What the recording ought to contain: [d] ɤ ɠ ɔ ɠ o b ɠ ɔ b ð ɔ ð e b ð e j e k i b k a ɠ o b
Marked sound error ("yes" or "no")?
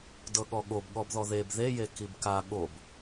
no